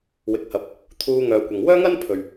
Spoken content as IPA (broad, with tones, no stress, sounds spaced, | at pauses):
w ɪ˨ k̚ h ɐ˨˥ p̚ | t̪ʰ uː˧ ŋ œː˨ kʷ ɐ˨ ŋ w œː˥ ŋ ɐ˥ n pʰ ɵ˨ ɥ